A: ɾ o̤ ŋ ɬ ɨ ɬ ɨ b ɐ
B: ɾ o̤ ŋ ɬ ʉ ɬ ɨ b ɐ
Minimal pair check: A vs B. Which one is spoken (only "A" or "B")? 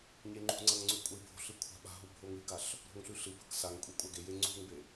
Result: B